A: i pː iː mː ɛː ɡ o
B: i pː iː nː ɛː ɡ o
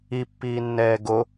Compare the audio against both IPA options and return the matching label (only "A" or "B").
B